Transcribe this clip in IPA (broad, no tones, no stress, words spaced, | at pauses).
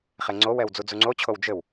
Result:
χeŋ͡ǀowɛw d͡zud͡zuŋ͡ǀot͡ɕʰow d͡ʒɘw